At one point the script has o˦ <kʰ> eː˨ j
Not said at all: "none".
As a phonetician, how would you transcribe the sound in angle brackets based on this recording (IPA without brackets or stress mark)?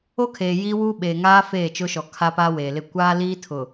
kʰ